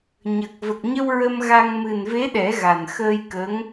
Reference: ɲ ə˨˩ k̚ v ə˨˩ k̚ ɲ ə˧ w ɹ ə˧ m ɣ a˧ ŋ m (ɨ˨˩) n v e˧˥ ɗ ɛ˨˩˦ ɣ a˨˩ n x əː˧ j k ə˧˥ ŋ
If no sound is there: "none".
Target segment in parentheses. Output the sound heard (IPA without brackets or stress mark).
ɨ˨˩